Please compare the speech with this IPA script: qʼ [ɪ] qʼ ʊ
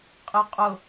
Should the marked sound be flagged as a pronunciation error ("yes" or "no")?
no